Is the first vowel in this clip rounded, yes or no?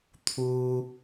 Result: yes